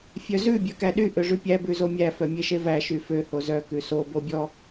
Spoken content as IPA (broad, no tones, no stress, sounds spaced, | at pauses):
fʲ œ z ʉ bʲ œ k æ ɗ y ʔ ø ʐ ʉ pʲ æ b ʉ z o mʲ æ f œ mʲ e ʃ e v æ ʃ y f ø h o z œ k ʉ s o b o bʲ ɔ